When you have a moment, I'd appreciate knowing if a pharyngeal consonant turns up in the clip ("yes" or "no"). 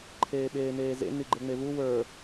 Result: no